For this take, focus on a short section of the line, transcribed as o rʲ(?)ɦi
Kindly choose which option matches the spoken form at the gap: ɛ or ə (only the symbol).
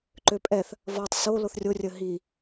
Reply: ə